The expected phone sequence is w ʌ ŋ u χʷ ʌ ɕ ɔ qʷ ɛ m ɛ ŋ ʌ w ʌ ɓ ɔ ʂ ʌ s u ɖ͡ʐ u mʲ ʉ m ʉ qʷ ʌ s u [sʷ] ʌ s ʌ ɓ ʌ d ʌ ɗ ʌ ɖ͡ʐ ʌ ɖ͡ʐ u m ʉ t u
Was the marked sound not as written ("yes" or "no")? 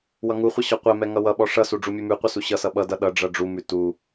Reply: yes